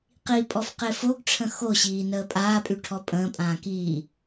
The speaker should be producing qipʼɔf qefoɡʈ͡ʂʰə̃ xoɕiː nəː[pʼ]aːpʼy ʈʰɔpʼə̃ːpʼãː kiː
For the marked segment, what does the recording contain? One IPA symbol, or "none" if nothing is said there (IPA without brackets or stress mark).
pʼ